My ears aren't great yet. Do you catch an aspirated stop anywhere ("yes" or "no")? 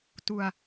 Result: no